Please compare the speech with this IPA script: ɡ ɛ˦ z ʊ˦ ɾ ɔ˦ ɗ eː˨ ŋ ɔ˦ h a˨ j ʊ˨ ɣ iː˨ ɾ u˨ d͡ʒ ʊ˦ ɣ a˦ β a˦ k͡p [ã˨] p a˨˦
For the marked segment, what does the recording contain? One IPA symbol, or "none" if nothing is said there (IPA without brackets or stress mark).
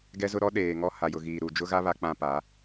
ã˦